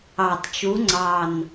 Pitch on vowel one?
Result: low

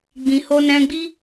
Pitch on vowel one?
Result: low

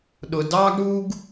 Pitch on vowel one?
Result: low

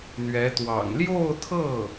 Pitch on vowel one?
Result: rising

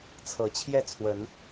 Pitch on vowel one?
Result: rising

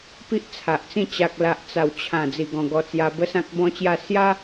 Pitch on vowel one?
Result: high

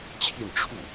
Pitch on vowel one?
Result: falling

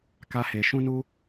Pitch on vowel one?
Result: high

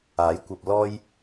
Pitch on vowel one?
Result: rising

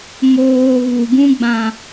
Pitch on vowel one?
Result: low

